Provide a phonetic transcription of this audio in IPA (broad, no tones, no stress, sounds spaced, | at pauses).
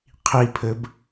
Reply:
qʰ i pʰ ɘ b